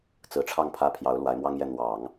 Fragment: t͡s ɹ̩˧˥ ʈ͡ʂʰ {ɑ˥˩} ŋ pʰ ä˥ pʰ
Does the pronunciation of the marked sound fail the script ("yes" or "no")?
no